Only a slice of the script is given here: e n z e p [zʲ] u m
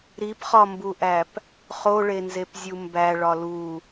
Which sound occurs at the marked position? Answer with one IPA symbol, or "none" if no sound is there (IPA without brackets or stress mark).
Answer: zʲ